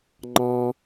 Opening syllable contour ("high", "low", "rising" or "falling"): high